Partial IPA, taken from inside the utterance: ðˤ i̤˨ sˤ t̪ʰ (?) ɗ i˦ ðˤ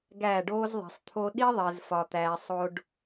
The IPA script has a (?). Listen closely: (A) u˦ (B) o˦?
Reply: B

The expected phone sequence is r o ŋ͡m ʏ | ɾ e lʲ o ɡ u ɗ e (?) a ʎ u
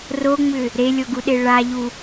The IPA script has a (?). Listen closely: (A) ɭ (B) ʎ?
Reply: A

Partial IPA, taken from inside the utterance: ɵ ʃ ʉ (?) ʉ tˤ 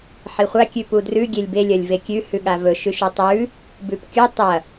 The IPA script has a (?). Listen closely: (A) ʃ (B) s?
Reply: A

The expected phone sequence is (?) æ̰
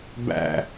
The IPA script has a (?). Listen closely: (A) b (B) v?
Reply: A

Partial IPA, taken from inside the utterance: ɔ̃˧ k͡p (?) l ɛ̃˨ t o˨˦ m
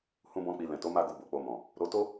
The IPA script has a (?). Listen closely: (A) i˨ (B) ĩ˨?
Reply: A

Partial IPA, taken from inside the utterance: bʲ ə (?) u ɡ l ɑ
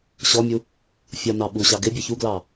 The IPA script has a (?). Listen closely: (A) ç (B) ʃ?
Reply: A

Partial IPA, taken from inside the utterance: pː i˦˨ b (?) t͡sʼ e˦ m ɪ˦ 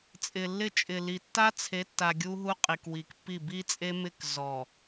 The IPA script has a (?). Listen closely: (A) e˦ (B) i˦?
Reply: B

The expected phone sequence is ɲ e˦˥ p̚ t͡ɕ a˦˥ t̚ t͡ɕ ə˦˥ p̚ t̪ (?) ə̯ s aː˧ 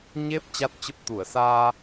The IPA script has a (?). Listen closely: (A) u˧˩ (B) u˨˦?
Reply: A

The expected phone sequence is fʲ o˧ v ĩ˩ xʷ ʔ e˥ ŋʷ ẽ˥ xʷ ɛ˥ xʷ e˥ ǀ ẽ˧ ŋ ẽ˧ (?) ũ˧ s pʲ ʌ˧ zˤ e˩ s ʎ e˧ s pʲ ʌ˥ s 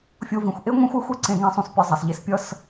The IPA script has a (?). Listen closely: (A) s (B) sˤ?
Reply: B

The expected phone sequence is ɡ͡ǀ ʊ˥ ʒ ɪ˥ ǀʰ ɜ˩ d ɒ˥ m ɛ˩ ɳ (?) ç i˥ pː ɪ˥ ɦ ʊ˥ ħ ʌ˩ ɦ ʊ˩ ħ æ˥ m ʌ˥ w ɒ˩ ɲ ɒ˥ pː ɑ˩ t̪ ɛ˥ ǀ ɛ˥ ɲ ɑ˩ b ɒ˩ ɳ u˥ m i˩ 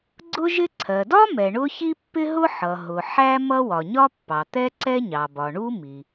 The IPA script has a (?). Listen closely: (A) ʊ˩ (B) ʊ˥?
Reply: B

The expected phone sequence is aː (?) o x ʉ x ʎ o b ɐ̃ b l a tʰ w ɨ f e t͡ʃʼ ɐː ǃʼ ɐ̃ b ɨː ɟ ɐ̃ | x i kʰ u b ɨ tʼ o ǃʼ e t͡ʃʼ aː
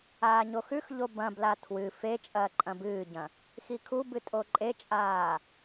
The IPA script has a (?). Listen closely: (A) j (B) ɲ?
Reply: B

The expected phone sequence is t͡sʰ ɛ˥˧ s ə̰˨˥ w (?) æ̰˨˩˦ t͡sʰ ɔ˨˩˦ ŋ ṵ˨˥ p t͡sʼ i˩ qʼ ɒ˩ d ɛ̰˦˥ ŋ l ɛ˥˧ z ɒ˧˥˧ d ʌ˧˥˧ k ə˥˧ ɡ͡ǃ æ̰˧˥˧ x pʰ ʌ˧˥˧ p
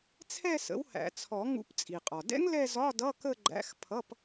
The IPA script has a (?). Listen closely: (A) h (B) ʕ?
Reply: A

